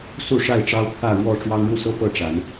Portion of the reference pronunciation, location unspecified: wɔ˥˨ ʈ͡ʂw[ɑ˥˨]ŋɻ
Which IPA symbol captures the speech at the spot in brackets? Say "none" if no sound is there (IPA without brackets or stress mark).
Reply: ɑ˦